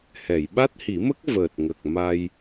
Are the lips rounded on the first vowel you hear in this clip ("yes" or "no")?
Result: no